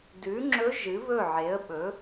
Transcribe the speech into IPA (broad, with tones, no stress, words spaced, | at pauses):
dʉ˩˥ŋ͡ǁɵ˧˥ ʒɨ˩˥βɵ˥˩ʕe˩˥ə̯ ɓɵ˩˥